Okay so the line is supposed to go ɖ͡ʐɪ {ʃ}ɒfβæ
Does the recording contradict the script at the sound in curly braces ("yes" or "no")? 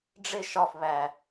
no